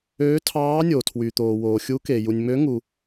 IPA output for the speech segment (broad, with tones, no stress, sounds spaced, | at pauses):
øː˧˥ tʰ ɑː˧˥ nʲ o˨ tʰ w y˨ t̪ oː˨ w oː˨ xʲ u˧˥ k e˨ j u˨ nʲ m ø˧˥ ŋ u˨